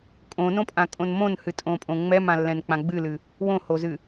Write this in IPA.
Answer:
kʼ õ n õ pʼ ã kʼ õ n m õ n h ɨ tʼ õ pʼ õ ŋ͡m ɛ m ã lː ɛ̃ n k͡p ã ɡ͡b ɨ l ɨ | w õ h o z ɨ

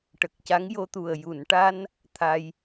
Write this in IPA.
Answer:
ʈ ə˨˩ k̚ c a˧˥ ŋ j o˧ t̪ u˨˩ ə̯ j u˨˩˨ n ʈ a˧ n | t̪ʰ a˧ j

